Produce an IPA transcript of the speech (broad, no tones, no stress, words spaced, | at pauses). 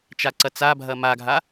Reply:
t͡ʃaǀɐt͡sabʱɐ maɡʱa